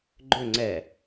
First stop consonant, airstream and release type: click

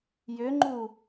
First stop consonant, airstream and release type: click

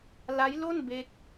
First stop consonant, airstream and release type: plain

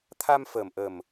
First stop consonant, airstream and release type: aspirated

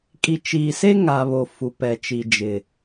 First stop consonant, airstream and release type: ejective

